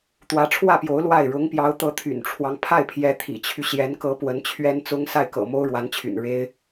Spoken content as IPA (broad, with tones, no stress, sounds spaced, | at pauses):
t̪ w ä˧˥ ʈ͡ʂʰ w ä˥˩ p j o˧˥ ʊ̯ l w a˥˩ ɪ̯ ɻ ʊ˧˥ ŋ p j ɑ˧˥ ʊ̯ t̪ ɤ˧˥ t̪ʰ y̰˨˩ n ʈ͡ʂʰ w ɑ˦ ŋ pʰ a˥˩ ɪ̯ pʰ j ɛ˧˥ t̪ʰ ḭ˨˩ t͡ɕʰ y˦ ɕ j ɛ˧˥ n k ɤ˧˥ p w ə˧˥ n t͡ɕʰ ɥ ɛ˥ n t͡s ʊ˥ ŋ s a˥˩ ɪ̯ k ɤ̰˨˩ m o˥ ʊ̯ ɻ w a˧˥ n t͡ɕʰ y̰˨˩ n ɻ e˥ ɪ̯